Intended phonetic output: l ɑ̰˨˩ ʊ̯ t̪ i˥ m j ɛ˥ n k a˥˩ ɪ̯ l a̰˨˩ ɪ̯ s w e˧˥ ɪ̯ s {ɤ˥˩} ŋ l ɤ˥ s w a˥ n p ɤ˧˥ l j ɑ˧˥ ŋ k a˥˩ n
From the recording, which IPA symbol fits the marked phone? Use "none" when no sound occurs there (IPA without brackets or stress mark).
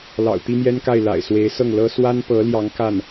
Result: ɤ˥˩